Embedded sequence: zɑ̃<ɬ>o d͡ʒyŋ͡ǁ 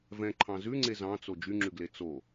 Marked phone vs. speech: incorrect: t͡s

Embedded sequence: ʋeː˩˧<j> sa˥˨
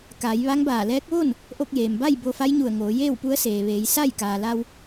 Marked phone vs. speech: correct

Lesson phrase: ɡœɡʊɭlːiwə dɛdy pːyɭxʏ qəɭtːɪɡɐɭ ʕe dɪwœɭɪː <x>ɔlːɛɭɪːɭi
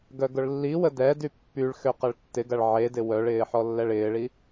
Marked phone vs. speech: incorrect: ħ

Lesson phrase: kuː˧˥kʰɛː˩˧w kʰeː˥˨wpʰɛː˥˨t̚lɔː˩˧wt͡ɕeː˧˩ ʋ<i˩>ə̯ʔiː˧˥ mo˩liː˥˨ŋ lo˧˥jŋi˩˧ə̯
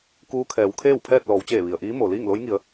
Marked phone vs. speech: correct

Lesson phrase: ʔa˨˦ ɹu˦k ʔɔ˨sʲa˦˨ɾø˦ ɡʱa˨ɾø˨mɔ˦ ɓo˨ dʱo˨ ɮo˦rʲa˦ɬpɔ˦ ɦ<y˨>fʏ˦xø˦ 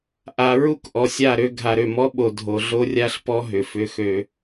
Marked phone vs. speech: incorrect: ʏ˨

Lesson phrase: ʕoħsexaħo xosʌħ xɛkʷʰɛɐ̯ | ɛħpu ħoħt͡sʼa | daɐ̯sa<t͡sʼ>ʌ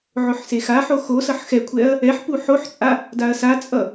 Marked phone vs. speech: correct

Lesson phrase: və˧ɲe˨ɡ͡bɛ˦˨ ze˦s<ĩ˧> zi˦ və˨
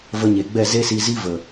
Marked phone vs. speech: incorrect: i˧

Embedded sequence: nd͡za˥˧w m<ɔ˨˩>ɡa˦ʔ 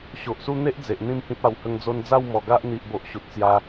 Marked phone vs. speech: correct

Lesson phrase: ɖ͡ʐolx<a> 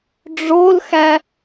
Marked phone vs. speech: incorrect: æ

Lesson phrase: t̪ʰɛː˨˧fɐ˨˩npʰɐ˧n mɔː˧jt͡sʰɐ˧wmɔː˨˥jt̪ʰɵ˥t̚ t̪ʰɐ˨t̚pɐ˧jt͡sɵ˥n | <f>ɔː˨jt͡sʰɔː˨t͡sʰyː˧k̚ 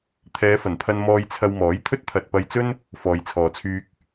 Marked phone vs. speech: correct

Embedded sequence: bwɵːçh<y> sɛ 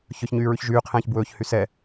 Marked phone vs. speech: correct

